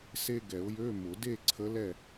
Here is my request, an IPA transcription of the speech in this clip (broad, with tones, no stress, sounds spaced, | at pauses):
s e˧ ɡ ɛ˨˩˦ ʊ̯ j ø˧˥˧ m ʊ˨˩˦ d e˥˨ ǀʰ ə˧˥ l ɛ˥˨